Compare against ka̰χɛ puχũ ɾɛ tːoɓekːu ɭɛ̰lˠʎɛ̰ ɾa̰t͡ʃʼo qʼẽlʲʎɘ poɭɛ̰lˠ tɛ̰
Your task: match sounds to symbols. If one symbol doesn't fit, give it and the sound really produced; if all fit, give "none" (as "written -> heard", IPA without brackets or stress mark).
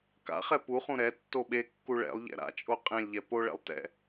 ɘ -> ɛ